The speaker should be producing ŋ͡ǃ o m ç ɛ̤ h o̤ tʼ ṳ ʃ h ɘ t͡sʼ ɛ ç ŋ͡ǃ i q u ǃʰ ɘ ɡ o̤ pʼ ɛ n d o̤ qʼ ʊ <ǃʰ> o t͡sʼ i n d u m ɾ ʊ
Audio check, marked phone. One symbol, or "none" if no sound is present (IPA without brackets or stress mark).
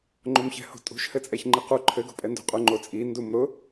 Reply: ŋ͡ǃ